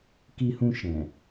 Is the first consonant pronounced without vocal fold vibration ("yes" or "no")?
yes